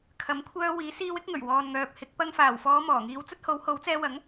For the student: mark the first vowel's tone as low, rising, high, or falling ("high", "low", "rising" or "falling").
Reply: rising